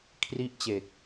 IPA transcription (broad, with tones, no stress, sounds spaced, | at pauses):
kʰ r i˥˩ ʔ t͡ɕ e˨˩ k̚